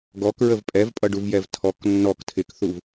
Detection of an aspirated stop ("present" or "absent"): present